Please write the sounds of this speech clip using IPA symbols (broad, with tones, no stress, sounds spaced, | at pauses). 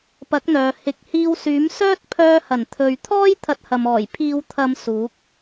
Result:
p ɐ˨˥ k̚ n̪ œː˨ h ɪ˨ k̚ h iː˧ w s yː˨˥ m s œː˥ t̚ pʰ œː˧ h ɐ˨˩ n t̪ʰ ɵ˨ ɥ t̪ʰ ɔː˥ j t̪ʰ ɐ˧ t̚ h ɐ˨ m ɔː˨˩ j pʰ iː˨˧ w t̪ʰ ɐ˨˧ m s uː˨˥ k̚